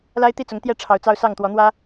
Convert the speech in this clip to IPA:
l a˦ ɪ̯ t̪ i˥˨ t͡s ʊ˨˦ ŋ t̪ j ɛ˥˨ ʈ͡ʂʰ ɑ˨˦ ʊ̯ t͡s ɑ˦ ʊ̯ s ɑ˥˨ ŋ t̪ w ɔ˨˦ n̪ w ä˦

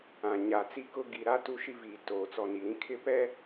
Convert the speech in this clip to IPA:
ã˨ ɲ a˨ t͡s i˦ k ʊ˦ ɡ i˨ ɾ a˦ t u˦ ʃ i˦ v iː˨ t oː˨ t͡s ɔ˨ n i˨ ɾ ĩ˦ kʰ ɪ˦˨ p ɛ˦

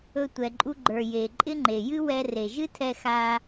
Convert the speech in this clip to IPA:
ɵ˧ tʷ ɛ˩ ǃʼ u˧ ɡ͡ǃ ə˞˩ j e˩ ǃʼ ɪ˥ ŋ͡ǃ e˩ j ɨ˥ w ɛ˧ r e˩ ʒ ɨ˥ tʰ ɛ˧ x a˧

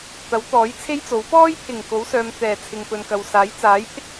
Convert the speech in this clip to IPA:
t̪ ɐ˨˥ w t̪ ɔː˨˥ j t͡sʰ e˥ j t͡s o˨˥ w p ɔː˥ j pʰ ɪ˨˩ ŋ k o˨˥ w s œː˨ m t̪ ɛː˨˩ t͡sʰ ɪ˨ ŋ p ɵ˨ n k ɐ˨ w s aː˨˥ j t͡s aː˨˥ j pʰ ɪ˥ k̚

